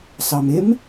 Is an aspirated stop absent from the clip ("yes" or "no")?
yes